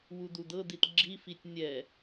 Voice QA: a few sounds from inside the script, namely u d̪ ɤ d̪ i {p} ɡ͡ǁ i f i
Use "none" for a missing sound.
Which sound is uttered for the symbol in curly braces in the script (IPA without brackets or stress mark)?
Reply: t